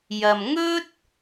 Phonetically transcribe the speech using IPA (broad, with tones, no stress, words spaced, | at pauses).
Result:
jɐ˨m ŋɵ˥t̚